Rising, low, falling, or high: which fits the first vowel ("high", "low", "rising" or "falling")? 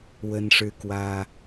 high